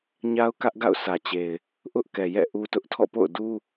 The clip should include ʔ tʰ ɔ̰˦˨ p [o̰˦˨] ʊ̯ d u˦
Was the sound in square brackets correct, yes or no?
yes